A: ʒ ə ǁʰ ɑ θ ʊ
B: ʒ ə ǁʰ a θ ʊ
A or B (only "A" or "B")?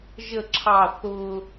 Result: A